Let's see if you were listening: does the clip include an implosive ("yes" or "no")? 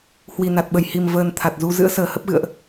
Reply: yes